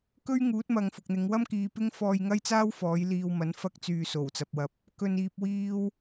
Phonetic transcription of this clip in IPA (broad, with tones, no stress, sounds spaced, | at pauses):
k ɵ˥ ɥ ŋ uː˨˥ t̚ m ɐ˨ ŋ f ʊ˨ k̚ n̪ ɪ˨˧ ŋ w ɐ˥ m k iː˨˧ p ɪ˥ ŋ f ɔː˧ j ŋ ɐ˥ j t͡s aː˥ w f ɔː˨˥ j l iː˧ w m ɐ˨˥ n f ɐ˥ k̚ t͡s yː˧ s o˨˩ w t͡s ɐ˨ p̚ w ɐ˨ p̚ | k ɵ˨ n iː˨ p̚ w iː˧ w